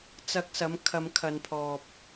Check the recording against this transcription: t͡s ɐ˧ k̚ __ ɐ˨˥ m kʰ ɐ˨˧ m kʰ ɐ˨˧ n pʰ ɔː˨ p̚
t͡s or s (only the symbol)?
s